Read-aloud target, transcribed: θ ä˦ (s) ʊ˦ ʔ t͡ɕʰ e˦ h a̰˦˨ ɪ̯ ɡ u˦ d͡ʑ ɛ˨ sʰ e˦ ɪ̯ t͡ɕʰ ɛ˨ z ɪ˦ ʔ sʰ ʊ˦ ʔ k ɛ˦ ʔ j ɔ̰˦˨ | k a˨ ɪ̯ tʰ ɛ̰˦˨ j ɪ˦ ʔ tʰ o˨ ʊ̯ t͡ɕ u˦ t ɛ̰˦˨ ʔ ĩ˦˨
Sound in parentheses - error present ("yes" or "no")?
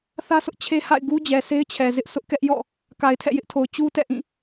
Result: no